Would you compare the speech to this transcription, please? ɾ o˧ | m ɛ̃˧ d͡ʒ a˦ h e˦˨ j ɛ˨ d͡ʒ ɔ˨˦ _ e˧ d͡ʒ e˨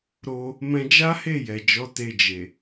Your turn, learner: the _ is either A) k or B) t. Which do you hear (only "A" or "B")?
B